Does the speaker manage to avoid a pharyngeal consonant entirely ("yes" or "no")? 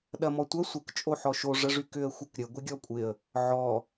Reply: no